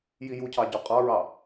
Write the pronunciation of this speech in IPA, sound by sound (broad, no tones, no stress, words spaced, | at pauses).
jijucʰɑ ɟɔqʼɑɹɑ